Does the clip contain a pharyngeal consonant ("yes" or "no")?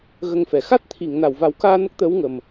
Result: no